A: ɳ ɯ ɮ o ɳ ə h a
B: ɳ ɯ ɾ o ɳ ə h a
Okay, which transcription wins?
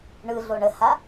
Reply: A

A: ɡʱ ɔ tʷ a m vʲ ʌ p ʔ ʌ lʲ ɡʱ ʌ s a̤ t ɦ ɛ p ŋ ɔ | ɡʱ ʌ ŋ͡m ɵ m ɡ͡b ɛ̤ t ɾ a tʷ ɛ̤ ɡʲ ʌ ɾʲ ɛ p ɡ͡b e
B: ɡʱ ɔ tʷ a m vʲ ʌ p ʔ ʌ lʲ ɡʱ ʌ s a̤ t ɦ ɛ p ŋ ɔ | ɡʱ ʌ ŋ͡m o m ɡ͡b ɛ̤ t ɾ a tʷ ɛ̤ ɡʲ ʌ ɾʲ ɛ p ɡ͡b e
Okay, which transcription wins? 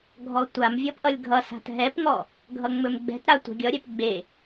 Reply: A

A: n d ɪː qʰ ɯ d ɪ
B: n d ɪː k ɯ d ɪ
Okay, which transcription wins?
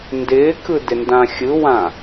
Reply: B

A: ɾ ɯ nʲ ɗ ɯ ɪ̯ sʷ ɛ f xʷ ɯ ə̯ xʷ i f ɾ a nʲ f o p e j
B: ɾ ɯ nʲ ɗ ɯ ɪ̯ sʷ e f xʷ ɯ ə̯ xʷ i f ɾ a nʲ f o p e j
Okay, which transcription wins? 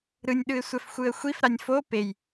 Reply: A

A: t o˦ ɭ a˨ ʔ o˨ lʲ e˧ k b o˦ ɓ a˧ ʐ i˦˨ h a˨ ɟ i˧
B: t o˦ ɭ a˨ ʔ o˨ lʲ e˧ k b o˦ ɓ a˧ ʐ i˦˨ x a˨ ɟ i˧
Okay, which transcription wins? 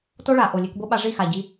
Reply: B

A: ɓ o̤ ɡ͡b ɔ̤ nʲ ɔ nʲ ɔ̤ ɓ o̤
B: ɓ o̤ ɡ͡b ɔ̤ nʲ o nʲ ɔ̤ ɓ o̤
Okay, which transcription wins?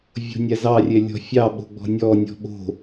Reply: A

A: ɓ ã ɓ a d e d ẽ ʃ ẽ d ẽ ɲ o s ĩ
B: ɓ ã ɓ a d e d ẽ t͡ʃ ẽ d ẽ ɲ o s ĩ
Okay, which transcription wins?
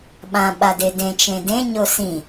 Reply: B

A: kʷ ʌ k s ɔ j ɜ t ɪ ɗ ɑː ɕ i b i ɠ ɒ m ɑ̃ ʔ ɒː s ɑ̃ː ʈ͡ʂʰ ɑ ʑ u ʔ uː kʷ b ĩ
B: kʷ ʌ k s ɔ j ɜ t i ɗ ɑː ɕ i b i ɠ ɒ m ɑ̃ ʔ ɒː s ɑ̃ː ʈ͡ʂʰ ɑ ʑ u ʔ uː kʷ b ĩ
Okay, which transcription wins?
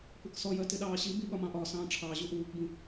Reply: A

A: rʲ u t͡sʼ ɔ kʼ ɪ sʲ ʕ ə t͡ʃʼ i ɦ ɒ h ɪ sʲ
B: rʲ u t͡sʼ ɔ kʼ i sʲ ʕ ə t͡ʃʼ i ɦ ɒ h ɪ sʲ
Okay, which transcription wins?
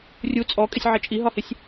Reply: A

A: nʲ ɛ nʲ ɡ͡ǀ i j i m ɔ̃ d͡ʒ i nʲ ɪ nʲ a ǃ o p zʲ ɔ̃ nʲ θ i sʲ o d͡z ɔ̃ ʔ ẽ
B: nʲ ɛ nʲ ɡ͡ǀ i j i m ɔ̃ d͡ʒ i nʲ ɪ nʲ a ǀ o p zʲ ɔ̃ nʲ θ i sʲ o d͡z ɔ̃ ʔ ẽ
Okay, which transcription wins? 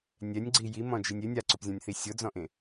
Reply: B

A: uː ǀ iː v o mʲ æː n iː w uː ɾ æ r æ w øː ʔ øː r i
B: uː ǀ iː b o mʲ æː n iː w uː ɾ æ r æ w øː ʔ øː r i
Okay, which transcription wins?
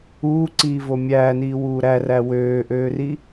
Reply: A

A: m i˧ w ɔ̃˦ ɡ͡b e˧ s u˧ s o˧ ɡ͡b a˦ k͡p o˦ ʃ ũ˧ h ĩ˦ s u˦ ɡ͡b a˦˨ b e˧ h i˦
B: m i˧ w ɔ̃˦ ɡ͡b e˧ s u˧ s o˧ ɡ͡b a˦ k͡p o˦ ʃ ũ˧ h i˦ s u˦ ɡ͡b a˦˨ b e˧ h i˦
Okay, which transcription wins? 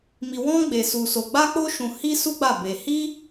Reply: B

